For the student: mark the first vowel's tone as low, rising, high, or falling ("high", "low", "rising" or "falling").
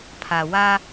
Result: low